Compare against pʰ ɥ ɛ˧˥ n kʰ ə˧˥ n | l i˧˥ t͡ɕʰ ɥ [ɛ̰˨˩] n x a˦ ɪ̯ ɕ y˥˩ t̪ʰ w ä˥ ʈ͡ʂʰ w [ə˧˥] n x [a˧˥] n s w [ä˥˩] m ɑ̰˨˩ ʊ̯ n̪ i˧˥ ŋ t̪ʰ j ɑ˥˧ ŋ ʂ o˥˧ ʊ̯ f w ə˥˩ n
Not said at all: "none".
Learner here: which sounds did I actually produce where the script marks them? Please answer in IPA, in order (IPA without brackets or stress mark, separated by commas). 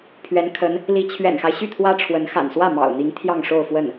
ɛ̰˨˩, ə˧˥, a̰˨˩, ä˥˩